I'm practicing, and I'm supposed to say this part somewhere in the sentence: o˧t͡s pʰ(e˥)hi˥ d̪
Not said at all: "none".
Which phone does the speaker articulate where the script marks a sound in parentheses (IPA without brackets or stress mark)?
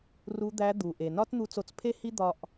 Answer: e˥